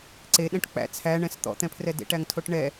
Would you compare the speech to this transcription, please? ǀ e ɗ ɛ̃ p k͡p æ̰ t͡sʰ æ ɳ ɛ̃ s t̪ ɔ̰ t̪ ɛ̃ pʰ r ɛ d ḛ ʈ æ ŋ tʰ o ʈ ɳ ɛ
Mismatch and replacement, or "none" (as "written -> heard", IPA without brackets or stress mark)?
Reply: p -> ʈ